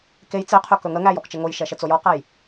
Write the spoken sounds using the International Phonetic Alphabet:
k e j t͡s e qʰ ɵ k ɵ ŋ ə ŋ æ j ɔ k t͡ʃ ə ŋ o j ʃ ɛ ʃ ə t͡s o j ɔ q æ j

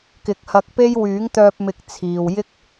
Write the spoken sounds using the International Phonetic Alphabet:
k ɪ˨˥ k̚ h ɐ˧ k̚ p e˥ j w yː˨˥ ŋ t̪ œː˧ p̚ m ɪ˨˥ k̚ t͡sʰ iː˨ w j ɪ˥ k̚

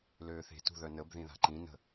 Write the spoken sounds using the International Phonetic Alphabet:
l øː θ e̤ t ṳ ð œ n ə b ð ĩ ð a̤ ǃ ĩ n ə̤

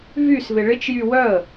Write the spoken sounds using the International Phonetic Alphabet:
v y s v ɪ ɭ ɪ t͡ʃ j y w œ ə̯

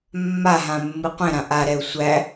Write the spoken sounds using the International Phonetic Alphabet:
mː a ɦ ã mː ɨ qʷ ɛ̃ ɾ ã ʔ a ɾ ɛ u̯ sʷ æ

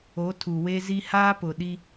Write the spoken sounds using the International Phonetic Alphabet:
o˨˦ tʰ u˨ w e˦ z i˦ h aː˦ p ʊ˨ ɗ i˦

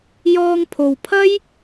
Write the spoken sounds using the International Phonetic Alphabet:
j ɔː˧ ŋ pʰ o˨ w pʰ ɐ˥ j

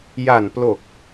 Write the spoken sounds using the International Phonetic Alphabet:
j a˨˩ n p l o˨˩ k̚

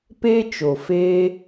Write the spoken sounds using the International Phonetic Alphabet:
p eː˦ t͡ʃ o˨ f eː˧

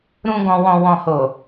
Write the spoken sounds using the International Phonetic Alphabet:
ɾ ũ˨ ɡ ɔ̃˨ w ɔ̃˨ w ɔ̃˨ h o˨

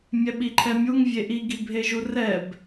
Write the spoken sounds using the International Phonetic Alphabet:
mʲ ɛ ɓ i ǃʰ ɛ mʲ u ŋ vʲ e ʔ i ɡ i bʱ e ʒ u r ɛ b

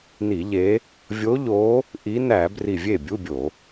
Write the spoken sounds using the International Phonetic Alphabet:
n i˧˩˧ ʎ e˨˦ | vʲ o˨˦ ʎ o˨˦ | ʔ i˨˦ n æ˧˩˧ b r i˧˩ vʲ e˥˩ bʲ u˧˥˧ bʲ o˧˩˧

